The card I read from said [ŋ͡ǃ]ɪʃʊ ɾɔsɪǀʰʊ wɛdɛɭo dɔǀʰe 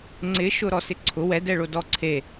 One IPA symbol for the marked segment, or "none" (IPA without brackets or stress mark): ŋ͡ǀ